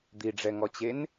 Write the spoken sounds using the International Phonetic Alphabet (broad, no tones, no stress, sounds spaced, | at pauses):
d̪ i ɖ͡ʐ ɛ ŋ ɔ t͡ɕ e n